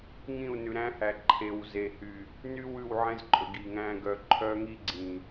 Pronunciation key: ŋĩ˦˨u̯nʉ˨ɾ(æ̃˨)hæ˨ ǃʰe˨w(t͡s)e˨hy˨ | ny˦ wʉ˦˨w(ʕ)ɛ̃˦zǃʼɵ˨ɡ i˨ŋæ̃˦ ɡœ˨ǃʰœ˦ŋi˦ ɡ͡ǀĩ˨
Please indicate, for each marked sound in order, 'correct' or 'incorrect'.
incorrect, incorrect, correct

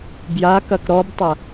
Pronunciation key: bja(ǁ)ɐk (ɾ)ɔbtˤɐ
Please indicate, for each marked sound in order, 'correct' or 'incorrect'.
incorrect, correct

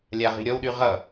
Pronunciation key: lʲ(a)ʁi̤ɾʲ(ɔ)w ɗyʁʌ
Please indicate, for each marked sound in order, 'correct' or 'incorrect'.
correct, correct

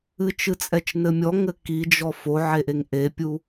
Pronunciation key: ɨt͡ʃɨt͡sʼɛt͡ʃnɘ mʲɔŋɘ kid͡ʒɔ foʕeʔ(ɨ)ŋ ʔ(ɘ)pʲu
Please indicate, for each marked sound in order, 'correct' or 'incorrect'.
incorrect, incorrect

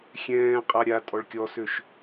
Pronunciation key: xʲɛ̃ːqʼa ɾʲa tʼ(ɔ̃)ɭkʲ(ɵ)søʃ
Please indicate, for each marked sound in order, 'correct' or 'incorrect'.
incorrect, incorrect

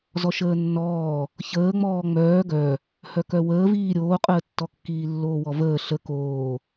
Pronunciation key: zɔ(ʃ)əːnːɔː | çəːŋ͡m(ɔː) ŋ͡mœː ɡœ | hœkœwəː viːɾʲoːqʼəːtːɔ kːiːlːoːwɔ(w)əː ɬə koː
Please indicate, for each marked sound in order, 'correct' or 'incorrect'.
correct, correct, incorrect

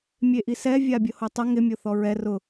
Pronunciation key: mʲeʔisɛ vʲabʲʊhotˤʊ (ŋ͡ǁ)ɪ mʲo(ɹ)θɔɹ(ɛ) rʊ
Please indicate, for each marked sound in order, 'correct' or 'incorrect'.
incorrect, incorrect, correct

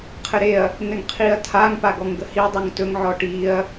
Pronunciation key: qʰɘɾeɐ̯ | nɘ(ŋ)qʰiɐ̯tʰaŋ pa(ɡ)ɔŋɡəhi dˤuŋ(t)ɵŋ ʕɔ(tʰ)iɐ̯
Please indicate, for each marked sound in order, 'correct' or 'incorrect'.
correct, correct, correct, incorrect

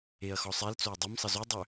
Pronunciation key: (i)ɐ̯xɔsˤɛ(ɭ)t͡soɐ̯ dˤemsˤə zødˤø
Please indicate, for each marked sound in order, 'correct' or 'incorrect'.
incorrect, incorrect

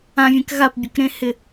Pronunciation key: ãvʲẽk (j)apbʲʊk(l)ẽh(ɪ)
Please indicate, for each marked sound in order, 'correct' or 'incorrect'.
incorrect, incorrect, correct

